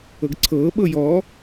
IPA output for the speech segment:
ɤɡǀʰɤː ɓɤjɔ

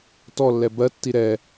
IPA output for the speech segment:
tɔlːɛ bɜtːi ɾɛ

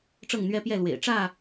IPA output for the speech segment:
ʈ͡ʂɤ˥˨ŋn̪ɥɛ˦pjɛ˥˨lwḛ˨˩ɪ̯ ʈ͡ʂä˥˨

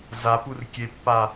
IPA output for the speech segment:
zapurkʲepːa

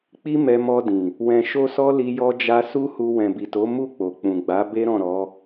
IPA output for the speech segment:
k͡pi˦mɛ˧mɔ˧dĩ˨ | wɛ̃˧ ʃo˦sɔ˦ li˧jɔ˧d͡ʒa˧ su˦hu˧ wɛ̃˨bi˨to˨˦ mu˦˨k͡po˨k͡pũ˨ɡ͡ba˨˦ be˦ɾɔ̃˦˨ ɾɔ˨˦

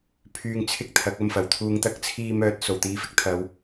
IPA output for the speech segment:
pʰyː˧ŋt͡sʰɪ˥k̚ t̪ʰɐ˨˥k̚ ɐ˧mfɐ˨˩wt̪ʰuː˧ŋ t̪ɐ˥k̚t͡sʰiː˧ mœː˧t̚ so˨˩wt̪iː˧fɪ˥k̚t̪ʰɐ˨˧w

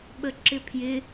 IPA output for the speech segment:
ɓəǁɪpʰjɪ

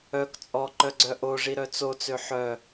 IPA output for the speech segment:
œk t͡sʼɔǃœɡ͡ǀœ ʔoʐiɾœ t͡sot͡sø ħœ

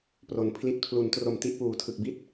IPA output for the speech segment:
pro˩˦n pʰli˨˩t̚pʰlu˩˦ntro˨˩m ti˥˩ʔpuː˩˦tʰɯ˨˩k̚ bi˥˩t̚

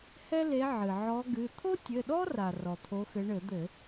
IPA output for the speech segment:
hɛ˥le˨˦ ʕɨ˩ ʕɔ˨˦ɡɨ˩˧˩ t̪ʰo˥tʲɘ˩˧˩ɗɔ˥ra˩ rɔ˩t̪ʰo˨˦xɘ˨˦ ɳɘ˧˩˧d̪ɘ˧˩˧

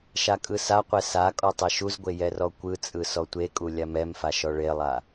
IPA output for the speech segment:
ʃakʼɯsaqʷɛ sa kʼɔtˤɛʃuzɡʷe jɛrɔkʷɯt͡sʼɯ sɔtʷekʼu lʲamɛmfa ʃɔɭelˠa

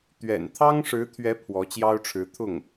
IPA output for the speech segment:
t̪ɥɛ̰˨˩nt̪ʰɑ˥ŋʂɻ̩˧˥t̪ʰɥɛ˧˥ pʰwɔ˧˥t͡ɕjɑ˥ʊ̯ʈ͡ʂʰɻ̩˧˥ t̪ʰʊ˥˩ŋ

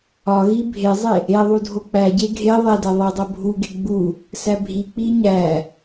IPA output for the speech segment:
ɒɣi bʱezˤe | eðˤu dʱok͡pæɟe ɡʱe ðˤedæ ðˤidˤo bʱuɡe ɡ͡bu | sæbʱik͡pi ɲæ

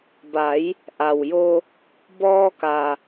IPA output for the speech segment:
ba˩˧j | ʔa˩wjo˧ | bɔː˧ka˩

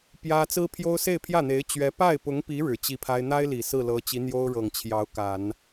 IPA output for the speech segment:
pjä˥ t͡sɹ̩˥pʰjo˥ʊ̯ se˥˧ɪ̯pʰjä˥˩n̪e˧˥ɪ̯ t͡ɕɥɛ˧˥ pa˥˩ɪ̯pʊ˧˥ŋpi˧˥ ɻɻ̩˨˩t͡ɕi˥˩pʰa˥ɪ̯ n̪a˥ɪ̯li˨˩ sɹ̩˥˩lɤ˧˥ t͡ɕi˧˥n̪jo˥ʊ̯ɻɤ˨˩ŋ t͡ɕʰjɑ˧˥ʊ̯ka˨˩˦n

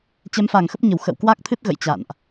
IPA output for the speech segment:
t͡ɕɛ˨˦mfa˧˩ŋxə˦˥p̚ɲə˧˩w xə̰˧˨wkwa˦˥k̚ t̪ʰɨ˦˥t̚ɣə̰˧˨j t͡ɕa̰˧˨nʔ

